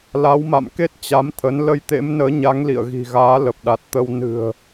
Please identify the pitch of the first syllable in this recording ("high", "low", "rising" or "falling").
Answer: rising